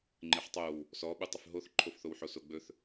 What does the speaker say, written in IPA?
ŋ͡ǃ ɪ ħ tˤ o w | s ɔ ɓ u tˤ ɪ f ɦ o θ ǃʰ o f θ o w ħ o s o ɡ͡b ɵ θ

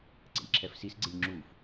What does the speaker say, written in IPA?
ǀ ḛ lʲ ǁʰ ɛ f s i s ɡ͡ǀ e lʲ ŋ͡ǁ u f

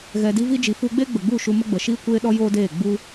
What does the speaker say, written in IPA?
ɣ ɛ˨ d i˧ v i˧ d͡ʒ i˨ f u˧ ɡ͡b e˦ ɡ͡b ə˨ ɡ͡b u˦˨ ʃ u˧ m ə˦ ɡ͡b ə˨ ʃ iː˦ kʷ eː˦ ɗ ɔ˦ j oː˦ d eː˦˨ ɡ͡b u˦

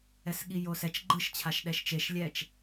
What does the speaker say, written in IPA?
ɛ s ɠ i j o s ɛ t͡ʃ ɡ͡ǃ ɯ ʃ t͡ɕʰ a ʃ ɗ ɛ ʃ t͡ʃ e ʃ lʲ ɛ t͡ʃ

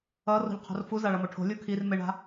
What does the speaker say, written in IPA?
ʌ r o̤ ʎ qʰ o̤ r f u z a ɭ ʌ m o ʈʰ o̤ lʲ u kʰ i r m e ɳ a̤

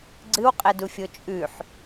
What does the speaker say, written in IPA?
ɡ͡ǀ ɨ w qʼ e d u fʲ o t͡ʃʼ ʉ ħ

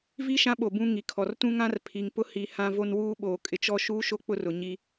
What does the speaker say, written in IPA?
v i˦ ʃ ã˦ ɓ o˨ b ũ˦ ŋ i˨ kʰ ɔ˨ r t ũ˦ ŋ ã˦ r pʰ i˨ ŋ p ʊ˦ h i˨ h ã˦ v o˦ n w uː˦ ɓ oː˨ kʼ ɪ˨ t͡ʃ ɔ˦ ʃ uː˦ ʃ o˦ k͡p ʊ˦ r ʊ˨ ɲ i˦

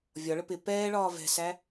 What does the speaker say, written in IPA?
vʲ ɒ ɭ ə p ɪ p ɛː ɭ ɒː v ɛ̤ s æ

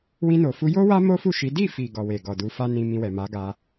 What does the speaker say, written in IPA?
w ĩ˧ n o˨ f u˧ j o˦ w a˦ m o˦ f u˦˨ ʃ i˨˦ d i˦˨ f i˨ ɡ ɔ˨ w e˨ ɡ ɔ˨ d u˨˦ f a˦ n ĩ˧ m ĩ˧ w ɛ˨ m a˨˦ ɡ a˧

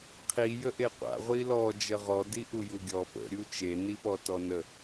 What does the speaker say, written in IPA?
qʰ i j ə ʔ e qʷ a̰ ʁʷ i l ɔ d͡ʒ ə ʁ ɔ d i ʔ u j u ɡʲ ɔ p ə̰ ɾʲ u t͡ʃ e n i p ɔ t ɔ n ə

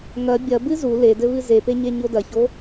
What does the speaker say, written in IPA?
ŋ ɐ bʲ ɐ b ɨ z u l e d ɘ β ɨ z e p e ɲ e ɲ o d ɐ ç o

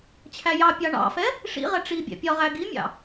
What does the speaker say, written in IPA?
t͡ɕʰ æ j ɑ pʲ ɑ ɳ ɑ̰ f ɛ | ʂ ḭ ʁ ɛ ʈ͡ʂ i bʲ æ̰ pʲ ɒ ʁ æ ɡ i mʲ ɑ̰

